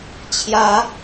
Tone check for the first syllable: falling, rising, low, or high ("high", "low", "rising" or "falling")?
high